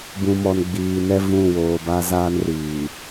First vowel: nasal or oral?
nasal